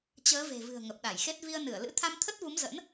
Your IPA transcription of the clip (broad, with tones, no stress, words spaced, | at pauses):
t͡ɕəː˨˦ve̤˨˩ vɨ̤˨˩ə̯ŋə˨˩p̚ɗa˧˩jxe˦˥t̚ vi˧ə̯ nɨ˧˩ə̯lɨ̰˧˥ t̪ʰa˧mt̪ʰə˦˥t̚vu˨˦mzə̰˧˥n